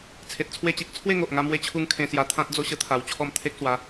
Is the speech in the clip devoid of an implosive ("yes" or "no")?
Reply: yes